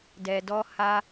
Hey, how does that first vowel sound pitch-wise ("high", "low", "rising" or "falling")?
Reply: low